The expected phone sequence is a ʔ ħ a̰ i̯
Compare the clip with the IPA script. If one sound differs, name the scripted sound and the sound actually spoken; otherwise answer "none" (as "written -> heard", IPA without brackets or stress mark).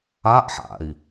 none